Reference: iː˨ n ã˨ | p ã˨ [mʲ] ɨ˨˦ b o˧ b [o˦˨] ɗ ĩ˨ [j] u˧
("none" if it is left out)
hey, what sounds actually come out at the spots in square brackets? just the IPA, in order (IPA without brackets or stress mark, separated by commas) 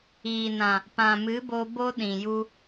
m, o˦, j